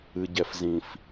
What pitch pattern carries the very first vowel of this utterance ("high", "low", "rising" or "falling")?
low